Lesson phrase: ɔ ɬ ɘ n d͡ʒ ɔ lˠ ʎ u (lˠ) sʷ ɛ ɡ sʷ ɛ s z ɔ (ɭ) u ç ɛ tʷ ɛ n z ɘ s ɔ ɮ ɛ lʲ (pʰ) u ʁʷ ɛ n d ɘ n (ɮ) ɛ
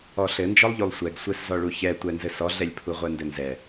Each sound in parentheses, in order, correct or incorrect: correct, correct, correct, incorrect: z

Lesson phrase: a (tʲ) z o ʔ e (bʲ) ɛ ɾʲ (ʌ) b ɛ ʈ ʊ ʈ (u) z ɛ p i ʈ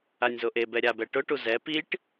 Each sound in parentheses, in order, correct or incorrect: incorrect: nʲ, incorrect: b, incorrect: a, correct

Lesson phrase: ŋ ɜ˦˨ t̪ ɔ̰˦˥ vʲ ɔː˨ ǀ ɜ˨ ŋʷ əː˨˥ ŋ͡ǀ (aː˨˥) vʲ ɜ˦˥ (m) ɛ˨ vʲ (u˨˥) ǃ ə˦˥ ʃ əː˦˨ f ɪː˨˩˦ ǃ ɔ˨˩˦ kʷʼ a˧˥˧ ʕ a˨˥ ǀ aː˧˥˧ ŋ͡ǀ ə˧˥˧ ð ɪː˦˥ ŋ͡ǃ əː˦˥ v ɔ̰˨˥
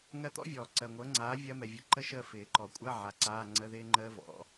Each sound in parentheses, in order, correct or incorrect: correct, correct, incorrect: ʊ˨˥

